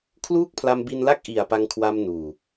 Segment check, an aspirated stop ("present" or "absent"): present